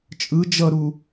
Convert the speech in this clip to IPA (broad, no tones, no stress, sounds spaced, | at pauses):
t͡ʃʼ ɯ d͡ʒ ʌ ɾ u